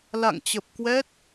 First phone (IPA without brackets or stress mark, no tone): l